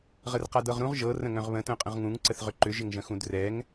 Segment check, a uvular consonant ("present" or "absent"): present